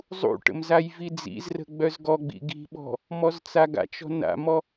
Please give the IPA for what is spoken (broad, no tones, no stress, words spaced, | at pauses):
zˤṵʈə̰m zajvid͡zḭzrə̤ ɡ͡bœzɡɔɡ͡bḭ ɡi̤ɓɔ̤ | mɔzt͡saɡa̰t͡ʃɔ̤ na̰mɔ